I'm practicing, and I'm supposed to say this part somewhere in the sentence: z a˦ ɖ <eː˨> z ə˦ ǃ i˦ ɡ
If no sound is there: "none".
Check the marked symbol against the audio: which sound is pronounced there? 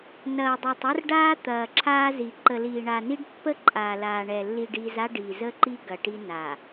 iː˨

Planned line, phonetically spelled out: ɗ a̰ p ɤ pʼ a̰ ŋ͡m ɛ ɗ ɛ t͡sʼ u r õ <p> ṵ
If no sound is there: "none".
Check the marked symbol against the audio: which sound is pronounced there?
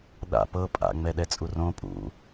pʼ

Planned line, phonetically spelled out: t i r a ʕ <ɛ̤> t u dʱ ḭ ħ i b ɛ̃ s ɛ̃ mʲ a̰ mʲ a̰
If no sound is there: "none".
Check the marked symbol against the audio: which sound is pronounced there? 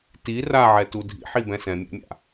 ɛ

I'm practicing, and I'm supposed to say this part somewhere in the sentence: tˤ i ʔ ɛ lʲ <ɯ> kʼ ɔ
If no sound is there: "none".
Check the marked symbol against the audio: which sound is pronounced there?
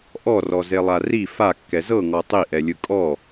ɯ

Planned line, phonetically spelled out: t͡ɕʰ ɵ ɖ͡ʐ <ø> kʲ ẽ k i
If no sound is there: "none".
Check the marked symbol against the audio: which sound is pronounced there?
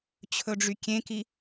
y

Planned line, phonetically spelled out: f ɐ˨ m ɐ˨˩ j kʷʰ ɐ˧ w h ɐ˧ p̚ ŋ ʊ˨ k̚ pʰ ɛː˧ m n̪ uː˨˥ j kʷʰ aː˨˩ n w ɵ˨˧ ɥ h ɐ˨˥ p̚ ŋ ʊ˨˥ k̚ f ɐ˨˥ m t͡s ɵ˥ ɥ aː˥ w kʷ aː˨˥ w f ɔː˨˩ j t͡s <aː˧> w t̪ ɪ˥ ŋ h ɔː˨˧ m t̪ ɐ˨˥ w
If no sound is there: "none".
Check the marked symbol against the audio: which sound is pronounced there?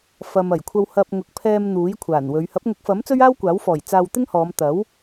aː˧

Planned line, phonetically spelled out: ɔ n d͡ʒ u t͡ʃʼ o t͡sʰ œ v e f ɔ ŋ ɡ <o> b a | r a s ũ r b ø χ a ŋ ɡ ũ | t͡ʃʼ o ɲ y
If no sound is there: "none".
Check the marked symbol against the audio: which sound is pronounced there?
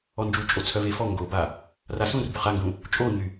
o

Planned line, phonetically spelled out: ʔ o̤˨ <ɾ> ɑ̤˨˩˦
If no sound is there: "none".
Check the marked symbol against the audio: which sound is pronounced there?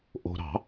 ɾ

